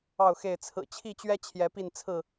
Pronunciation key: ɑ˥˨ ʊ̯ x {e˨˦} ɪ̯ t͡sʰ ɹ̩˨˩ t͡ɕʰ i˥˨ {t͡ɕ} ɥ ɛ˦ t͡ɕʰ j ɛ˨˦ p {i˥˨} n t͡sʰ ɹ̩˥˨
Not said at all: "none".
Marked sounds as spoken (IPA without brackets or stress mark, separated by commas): e˥˨, t͡ɕ, i˥˨